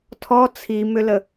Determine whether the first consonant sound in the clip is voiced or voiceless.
voiceless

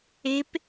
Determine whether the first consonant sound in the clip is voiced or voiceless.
voiceless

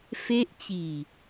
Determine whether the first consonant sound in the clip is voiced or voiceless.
voiceless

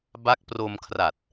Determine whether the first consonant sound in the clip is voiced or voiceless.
voiced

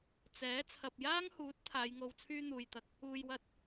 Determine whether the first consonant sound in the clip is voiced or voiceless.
voiceless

